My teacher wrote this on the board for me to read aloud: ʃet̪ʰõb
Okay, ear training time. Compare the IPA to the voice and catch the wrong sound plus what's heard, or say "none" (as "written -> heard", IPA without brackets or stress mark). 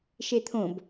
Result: none